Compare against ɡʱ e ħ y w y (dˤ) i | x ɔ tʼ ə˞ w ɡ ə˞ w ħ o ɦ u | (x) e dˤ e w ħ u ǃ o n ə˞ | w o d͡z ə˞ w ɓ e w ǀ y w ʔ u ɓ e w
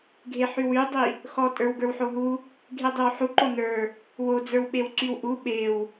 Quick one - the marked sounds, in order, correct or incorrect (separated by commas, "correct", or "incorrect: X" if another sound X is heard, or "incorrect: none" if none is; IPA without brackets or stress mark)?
correct, incorrect: ɡʱ